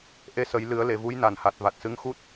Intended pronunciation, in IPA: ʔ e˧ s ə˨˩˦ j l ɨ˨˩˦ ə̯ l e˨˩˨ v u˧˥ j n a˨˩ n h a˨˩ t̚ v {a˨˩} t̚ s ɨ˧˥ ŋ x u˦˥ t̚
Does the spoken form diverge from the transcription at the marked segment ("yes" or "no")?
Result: no